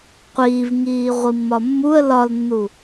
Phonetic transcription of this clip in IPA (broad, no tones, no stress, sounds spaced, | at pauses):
qʷ iː v ŋ iː ʁʷ i mː ɒ mː u ə̯ l ɒ l nː u